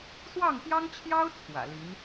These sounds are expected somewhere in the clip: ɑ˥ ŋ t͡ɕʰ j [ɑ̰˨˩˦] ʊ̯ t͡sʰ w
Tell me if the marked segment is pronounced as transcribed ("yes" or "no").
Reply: no